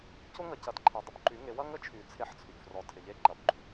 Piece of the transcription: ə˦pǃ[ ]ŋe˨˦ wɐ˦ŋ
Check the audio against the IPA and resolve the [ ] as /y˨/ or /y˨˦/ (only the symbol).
y˨˦